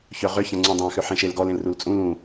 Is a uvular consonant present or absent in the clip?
present